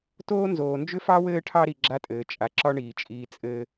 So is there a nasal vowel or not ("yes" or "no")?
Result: no